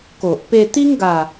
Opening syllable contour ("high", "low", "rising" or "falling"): low